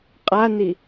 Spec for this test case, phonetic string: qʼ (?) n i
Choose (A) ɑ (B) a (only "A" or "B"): B